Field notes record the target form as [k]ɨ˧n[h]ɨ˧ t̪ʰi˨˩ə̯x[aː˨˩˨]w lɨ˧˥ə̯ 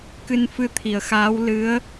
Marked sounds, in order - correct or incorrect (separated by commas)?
correct, incorrect, incorrect